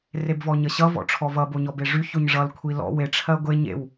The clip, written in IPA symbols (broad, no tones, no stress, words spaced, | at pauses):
rebvɔɲʌɕʌ vɔ̰ʈ͡ʂʰɔvʌ boɲɔbeʐy çoɲʐʌl kʷʰilɔ̰ we ʈ͡ʂʰɜɡʷe ɲḛw